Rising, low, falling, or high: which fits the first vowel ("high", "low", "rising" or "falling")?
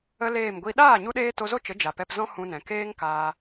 high